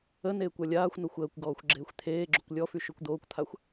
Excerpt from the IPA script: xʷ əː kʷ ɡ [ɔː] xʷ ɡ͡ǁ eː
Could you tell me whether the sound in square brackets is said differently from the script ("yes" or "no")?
no